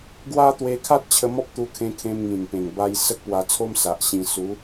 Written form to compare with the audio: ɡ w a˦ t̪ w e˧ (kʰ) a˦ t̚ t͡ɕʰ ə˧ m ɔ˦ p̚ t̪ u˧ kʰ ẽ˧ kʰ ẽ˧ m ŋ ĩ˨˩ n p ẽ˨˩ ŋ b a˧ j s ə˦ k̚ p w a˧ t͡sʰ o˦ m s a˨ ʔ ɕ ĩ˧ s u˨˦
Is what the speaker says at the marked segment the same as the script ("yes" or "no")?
yes